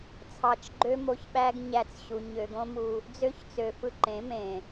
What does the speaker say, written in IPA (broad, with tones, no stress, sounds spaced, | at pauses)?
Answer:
t͡sʰ ɑ˨ t͡ʃ ɡ͡ǃ ø˦ m o˧ ç ɓ æ˦ ɡ ɲ æ˧ t͡s ɕ u˨ ɲ ø˨ ɡ õ˦ m u˧ | d͡z ø˦ ç t͡s ø˨ f ɯ˧ ǃ ẽ˨˦ m ẽ˨